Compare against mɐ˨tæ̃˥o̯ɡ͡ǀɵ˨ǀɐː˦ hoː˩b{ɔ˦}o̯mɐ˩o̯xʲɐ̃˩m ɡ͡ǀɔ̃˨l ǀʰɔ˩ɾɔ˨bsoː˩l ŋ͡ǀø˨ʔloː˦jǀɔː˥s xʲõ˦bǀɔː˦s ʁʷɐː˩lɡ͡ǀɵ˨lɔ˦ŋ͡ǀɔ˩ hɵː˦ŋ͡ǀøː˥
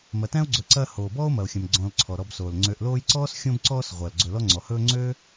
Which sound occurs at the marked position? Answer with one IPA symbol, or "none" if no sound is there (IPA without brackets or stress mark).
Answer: ɔː˦